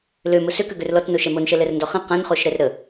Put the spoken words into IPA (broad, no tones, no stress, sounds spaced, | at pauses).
l ø m ʊ s ø k ø ɡ ø r l ɔ t͡s n o ʃ ɛ m o n ʃ ɛ l ɛ r n d ɔ χ ĩ q ɛ̃ n χ o ʃ ɾ ɛ r ɾ ə